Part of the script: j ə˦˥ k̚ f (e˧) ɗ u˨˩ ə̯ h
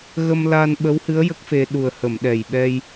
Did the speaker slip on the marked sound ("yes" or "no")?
no